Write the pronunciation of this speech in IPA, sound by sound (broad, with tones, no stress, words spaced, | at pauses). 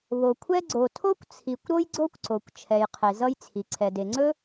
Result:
βo˩kʷʰɛ˥ ɡ͡ǀo˩tʰo˥kʷt͡sʰi˩kʷ ɾo˥jɡ͡ǀo˥kʷǀo˩kʷ t͡ʃʰɛ˩jqʰe˩ zʌ˥jt͡sʰi˩ ǀʰɛ˩de˩ŋ͡ǀɵ˥